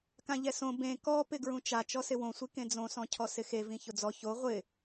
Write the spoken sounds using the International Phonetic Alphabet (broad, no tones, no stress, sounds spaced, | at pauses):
k ã ʎ ɛ s õ b ẽ k ɔ p ɪ ɡ ɹ ũ t͡ʃ a t͡ʃ ɔ s ɪ w õ sʷ i k ẽ d͡z õ s ɔ̃ cʰ ɔ s ɪ x e v ĩ ç ʊ d͡z ɔ ç o ʁʷ ɪ